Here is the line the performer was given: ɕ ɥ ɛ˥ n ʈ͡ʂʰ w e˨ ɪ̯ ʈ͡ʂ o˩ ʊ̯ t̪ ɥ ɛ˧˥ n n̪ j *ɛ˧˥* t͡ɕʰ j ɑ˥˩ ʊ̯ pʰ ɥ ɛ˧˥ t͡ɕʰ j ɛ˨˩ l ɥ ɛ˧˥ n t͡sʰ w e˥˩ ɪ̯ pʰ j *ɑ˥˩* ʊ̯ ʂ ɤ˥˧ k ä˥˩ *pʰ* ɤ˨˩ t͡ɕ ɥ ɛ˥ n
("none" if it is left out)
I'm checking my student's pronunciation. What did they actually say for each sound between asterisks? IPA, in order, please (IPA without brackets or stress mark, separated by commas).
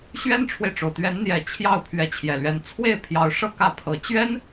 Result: ɛ˧˥, ɑ˧˥, pʰ